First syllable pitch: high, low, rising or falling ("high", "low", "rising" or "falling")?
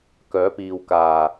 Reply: rising